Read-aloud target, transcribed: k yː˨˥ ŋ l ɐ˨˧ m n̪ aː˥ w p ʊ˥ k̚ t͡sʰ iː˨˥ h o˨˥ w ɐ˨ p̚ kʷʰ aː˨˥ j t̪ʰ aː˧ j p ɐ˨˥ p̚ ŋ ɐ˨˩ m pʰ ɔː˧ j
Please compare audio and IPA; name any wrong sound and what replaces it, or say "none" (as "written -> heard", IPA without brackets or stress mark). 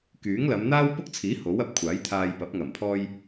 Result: none